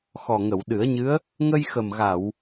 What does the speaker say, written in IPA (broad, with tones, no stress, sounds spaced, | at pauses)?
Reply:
x ɔ˨˩ ŋ ə˨˩˨ w ɗ ɨ˨˩˦ ə̯ ɲ ɨ˧˥ ə̯ | ŋ ə˧ j x ə˨˩ m ɣ a˨˩˨ w